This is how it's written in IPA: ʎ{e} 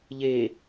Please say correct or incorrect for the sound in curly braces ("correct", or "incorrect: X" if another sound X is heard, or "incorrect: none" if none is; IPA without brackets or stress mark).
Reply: correct